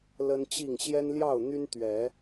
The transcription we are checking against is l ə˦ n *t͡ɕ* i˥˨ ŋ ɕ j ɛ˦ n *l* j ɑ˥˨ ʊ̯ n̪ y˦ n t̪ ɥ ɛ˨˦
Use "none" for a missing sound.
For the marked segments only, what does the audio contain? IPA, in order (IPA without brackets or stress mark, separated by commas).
t͡ɕ, l